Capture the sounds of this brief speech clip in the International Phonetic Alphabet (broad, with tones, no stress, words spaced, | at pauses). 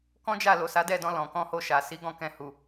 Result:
kɔ̃˦d͡ʒa˦˨ lo˨sa˨˦dɛ˦˨dɔ̃˧ lɔ̃˨kɔ̃˧ho˧ʃa˨ si˨˦ɡɔ̃˦˨kɛ̃˧hu˨